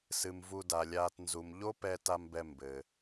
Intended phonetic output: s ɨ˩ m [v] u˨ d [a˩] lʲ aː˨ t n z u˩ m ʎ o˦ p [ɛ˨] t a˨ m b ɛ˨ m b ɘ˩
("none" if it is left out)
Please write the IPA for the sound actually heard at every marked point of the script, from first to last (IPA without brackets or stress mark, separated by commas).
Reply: v, a˩, ɛ˨